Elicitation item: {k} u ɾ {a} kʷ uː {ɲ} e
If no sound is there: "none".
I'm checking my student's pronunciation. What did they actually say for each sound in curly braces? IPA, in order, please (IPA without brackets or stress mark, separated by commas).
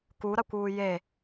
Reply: k, a, j